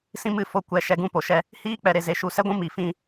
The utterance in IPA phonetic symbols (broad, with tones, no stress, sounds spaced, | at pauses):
s ĩ˦ m ɨ˦˨ f o˧ kʷ ɛ˨ ʃ ɛ˧ ɡ ũ˦˨ p o˨ ʃ ɛ˧ | h iː˦ k͡p ɛ˨ ɾ e˨ z e˨ ʃ u˨ s ɛ˦ ɡʷ ũ˦ m i˨ f ĩ˦˨